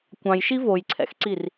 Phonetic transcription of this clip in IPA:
kʷ ɑ̃ j ʃ i v o j ǀʰ ɛ̰ x ǀ i r

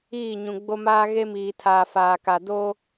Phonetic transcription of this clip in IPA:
iː˦˨ ɲ ũ˨ ɡ͡b o˦ m aː˦ ɣ e˦ m iː˨ tʰ aː˨ f aː˨ k a˨ d oː˦

